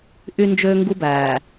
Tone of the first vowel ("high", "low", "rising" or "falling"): high